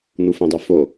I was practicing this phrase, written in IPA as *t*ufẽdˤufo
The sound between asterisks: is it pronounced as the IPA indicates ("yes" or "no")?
no